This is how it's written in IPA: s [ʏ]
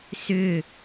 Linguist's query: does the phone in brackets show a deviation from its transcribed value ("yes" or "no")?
no